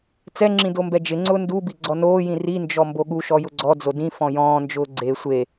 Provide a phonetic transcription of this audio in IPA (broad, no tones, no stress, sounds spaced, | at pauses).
t͡s ɛ ŋ͡ǁ ĩ d o m b ɛ d͡ʒ ɪ ŋ͡ǀ ʊː n d u b i ɡ͡ǀ ɔ n oː j ĩ r i n d͡ʒ ɔ m b o ɠ u ʃ ɔ j ʊ ɡ͡ǀ ɔ d͡z o d ĩ f ɔ̃ j ɔ̃ː n d͡ʒ ʊː ɡ͡ǀ e sʷ e